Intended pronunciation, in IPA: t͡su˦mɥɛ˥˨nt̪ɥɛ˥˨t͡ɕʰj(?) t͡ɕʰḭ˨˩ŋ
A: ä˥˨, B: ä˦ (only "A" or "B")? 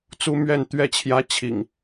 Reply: B